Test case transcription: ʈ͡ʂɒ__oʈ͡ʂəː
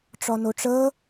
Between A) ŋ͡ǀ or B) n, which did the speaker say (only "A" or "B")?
B